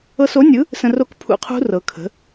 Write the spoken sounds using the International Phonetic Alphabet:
ɤ˧so˩˥nʲɯ˩˥ | sə̃˧ro˦˥kpʰṵ˧qʰṳ˦˥ rɤ˩˧kʰə̤˩˥

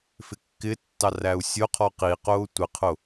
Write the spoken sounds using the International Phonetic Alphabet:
fɪkːɪtːɑ ræu̯sʲʊqʰɔ qiqʊː tʷɪqʰʊ

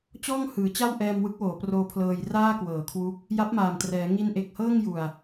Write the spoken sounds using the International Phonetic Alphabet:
t͡ɕɔː˥˩ŋhɯː˩˦t͡ɕa˥˩w ʔɛː˧m wɯ˦˥k̚woː˩˦proː˧pʰlɤː˧j raː˥˩kwɤː˩˦kʰwu˦˥k̚ | ja˦˥p̚maː˨˩mtrɛː˩˦ ŋi˧nʔe˨˩k̚hɤː˥˩ŋ ju˨˩a̯

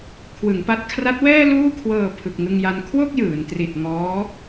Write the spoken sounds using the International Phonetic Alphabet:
kʰwɯ˩˦ŋpa˦˥t̚ kʰra˦˥t̚wɛː˥˩luː˥˩kʰwɤː˧ pʰɯ˨˩k̚ŋɯ˧ŋja˧n kʰwo˥˩k̚jɯː˩˦n tri˨˩t̚ ŋɔː˦˥

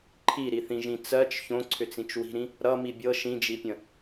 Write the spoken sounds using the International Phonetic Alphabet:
ǃʰiɾiθĩʒĩ t͡sɜt͡ʃ çõǀʰʏt͡sĩt͡ʃ wi̤ɾĩ | ɾʌmi bʲɤ ʃĩd͡ʒipʲə̃

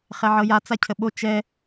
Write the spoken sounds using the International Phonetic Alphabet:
χɛʕɤja t͡sacʰəɓo t͡ʃɛ

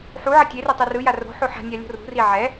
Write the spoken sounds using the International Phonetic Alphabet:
ħu ʕʌtʲeri tˤerɯja ro̤ħo ħa̤nʲa lʲo̤rṳri ʕɛ

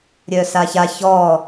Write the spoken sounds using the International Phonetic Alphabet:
ɾʲœsaça çɔ

